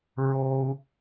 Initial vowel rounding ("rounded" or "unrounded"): rounded